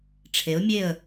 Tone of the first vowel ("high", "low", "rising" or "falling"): rising